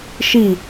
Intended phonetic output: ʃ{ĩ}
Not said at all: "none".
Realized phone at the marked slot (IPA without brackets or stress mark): i